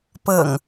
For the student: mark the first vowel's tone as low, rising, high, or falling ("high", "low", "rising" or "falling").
low